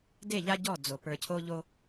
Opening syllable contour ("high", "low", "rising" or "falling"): falling